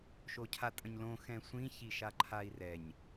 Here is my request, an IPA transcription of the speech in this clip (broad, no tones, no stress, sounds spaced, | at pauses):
ʃ o cʰ a tʼ ə̃ ɲ l õ x ɛ̃ sʷ ĩ ç i ʃ a ǃʰ a i̯ r ɛ ɲ